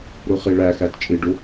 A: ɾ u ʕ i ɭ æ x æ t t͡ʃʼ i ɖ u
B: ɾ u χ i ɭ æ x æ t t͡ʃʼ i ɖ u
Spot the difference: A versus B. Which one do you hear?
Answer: B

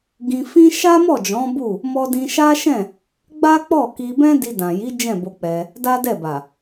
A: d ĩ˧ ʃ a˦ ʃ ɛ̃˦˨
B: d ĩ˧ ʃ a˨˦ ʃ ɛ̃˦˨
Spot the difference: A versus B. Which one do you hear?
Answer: A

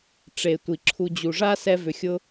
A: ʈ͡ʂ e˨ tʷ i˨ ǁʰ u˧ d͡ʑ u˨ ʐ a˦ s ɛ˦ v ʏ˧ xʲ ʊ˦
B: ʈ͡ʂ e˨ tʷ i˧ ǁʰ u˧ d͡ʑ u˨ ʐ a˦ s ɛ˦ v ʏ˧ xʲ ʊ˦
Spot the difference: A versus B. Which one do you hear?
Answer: A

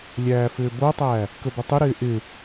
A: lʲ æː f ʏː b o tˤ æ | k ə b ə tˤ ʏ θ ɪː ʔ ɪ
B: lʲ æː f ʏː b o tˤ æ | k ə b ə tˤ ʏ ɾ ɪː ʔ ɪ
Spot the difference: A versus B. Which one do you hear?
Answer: B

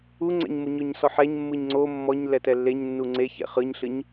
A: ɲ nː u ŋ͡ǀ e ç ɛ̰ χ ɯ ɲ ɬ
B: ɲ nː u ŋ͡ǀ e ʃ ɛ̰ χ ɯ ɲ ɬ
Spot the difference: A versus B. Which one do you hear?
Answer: A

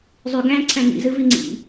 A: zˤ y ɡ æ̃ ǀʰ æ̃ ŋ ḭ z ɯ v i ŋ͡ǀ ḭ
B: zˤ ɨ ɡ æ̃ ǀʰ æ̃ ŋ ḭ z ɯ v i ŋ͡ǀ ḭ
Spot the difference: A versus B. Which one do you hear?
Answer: A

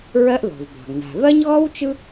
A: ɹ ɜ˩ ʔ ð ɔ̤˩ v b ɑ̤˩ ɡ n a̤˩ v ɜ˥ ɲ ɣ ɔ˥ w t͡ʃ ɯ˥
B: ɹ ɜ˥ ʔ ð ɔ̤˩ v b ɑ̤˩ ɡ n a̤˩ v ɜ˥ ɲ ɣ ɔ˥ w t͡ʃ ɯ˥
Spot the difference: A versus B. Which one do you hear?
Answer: B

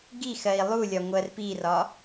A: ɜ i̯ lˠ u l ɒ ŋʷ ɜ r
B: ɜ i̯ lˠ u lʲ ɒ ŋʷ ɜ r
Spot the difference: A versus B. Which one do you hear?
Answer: B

